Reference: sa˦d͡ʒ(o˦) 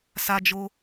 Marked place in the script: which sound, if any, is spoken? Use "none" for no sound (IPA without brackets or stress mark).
o˦